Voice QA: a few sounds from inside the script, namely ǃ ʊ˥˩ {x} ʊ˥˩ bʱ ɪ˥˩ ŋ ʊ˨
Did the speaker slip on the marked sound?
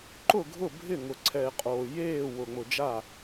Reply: yes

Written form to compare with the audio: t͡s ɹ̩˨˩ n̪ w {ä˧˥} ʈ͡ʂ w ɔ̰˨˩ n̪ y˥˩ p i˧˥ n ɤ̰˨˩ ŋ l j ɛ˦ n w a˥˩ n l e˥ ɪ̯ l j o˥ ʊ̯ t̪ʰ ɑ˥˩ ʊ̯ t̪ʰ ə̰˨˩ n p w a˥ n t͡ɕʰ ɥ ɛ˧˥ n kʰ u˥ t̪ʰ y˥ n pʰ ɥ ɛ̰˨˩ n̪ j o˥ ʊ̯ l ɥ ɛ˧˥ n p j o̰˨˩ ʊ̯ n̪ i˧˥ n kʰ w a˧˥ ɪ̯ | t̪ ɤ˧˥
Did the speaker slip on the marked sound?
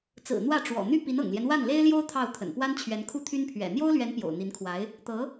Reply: yes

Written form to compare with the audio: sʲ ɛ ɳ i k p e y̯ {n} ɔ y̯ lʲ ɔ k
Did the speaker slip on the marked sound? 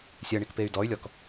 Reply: yes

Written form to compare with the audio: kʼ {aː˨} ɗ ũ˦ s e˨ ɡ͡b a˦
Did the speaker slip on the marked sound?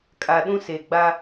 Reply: yes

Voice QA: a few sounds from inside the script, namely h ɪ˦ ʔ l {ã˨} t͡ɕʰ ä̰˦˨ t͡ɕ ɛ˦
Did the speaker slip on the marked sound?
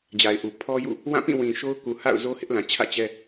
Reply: no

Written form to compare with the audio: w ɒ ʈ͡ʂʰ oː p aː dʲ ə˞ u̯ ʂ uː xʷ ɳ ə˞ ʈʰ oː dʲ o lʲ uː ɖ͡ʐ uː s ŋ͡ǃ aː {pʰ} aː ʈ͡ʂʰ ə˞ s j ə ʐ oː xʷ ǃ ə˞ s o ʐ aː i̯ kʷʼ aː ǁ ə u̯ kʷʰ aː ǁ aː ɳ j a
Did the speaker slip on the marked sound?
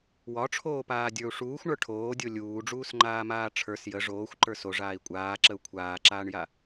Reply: yes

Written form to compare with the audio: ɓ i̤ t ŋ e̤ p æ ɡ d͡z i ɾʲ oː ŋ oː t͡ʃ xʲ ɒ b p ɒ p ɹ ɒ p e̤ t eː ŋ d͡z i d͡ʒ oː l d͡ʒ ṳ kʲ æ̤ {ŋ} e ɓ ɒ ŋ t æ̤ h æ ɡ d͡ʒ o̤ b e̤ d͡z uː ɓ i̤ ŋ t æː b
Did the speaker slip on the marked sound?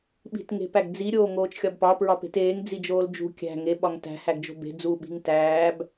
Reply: no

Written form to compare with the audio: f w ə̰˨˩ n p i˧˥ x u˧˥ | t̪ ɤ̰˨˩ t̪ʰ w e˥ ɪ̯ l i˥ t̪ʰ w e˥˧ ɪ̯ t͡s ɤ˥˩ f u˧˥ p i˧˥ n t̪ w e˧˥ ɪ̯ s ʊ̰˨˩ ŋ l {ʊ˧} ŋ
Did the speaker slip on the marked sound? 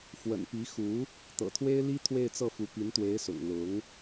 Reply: yes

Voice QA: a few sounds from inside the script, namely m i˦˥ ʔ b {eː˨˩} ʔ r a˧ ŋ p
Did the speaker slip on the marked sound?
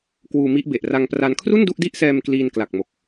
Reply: yes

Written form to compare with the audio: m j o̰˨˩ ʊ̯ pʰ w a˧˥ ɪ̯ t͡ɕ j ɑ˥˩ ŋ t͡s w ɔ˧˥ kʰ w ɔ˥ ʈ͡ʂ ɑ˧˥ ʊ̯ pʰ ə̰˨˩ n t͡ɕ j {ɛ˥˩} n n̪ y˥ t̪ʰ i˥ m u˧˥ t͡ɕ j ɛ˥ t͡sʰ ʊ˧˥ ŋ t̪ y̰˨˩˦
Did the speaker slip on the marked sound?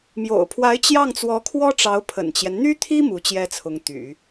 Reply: yes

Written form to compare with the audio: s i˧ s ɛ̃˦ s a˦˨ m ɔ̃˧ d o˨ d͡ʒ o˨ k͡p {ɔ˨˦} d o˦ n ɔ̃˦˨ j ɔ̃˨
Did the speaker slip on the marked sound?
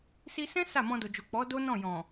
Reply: no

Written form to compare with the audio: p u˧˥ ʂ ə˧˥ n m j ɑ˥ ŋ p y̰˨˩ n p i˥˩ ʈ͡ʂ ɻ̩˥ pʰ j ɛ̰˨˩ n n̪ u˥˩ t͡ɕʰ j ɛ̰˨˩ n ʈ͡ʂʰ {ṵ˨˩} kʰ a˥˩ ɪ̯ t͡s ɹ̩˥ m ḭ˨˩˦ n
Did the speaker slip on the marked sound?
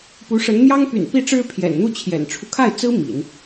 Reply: yes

